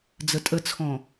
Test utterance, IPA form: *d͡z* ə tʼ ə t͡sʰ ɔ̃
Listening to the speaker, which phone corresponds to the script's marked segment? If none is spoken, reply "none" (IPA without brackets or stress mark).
d͡z